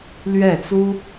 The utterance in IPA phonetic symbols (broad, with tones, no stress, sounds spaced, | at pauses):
l ɥ ɛ˥˩ t͡s u˥